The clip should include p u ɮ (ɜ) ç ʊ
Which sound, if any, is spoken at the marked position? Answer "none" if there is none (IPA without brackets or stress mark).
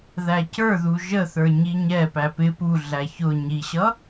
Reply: æ